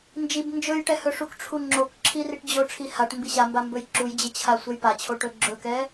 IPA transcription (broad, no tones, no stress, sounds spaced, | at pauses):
n d͡ʒ i b n d͡ʒ ɵ j ʈ ɛ h ɵ ʂ u k ʈ͡ʂʰ u ŋ͡ǁ o k ǁʰ i r i ʈ d͡ʑ o ʈ͡ʂʰ i h a ʈ m b i ɕ a m b a m b ɵ j ǁ u j d͡ʑ ɘ t͡ɕʰ a sʷ ɛ j p a t͡ɕʰ o ʈ ɵ ɡ͡ǁ ɵ k ɛ